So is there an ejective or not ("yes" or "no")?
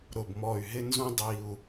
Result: no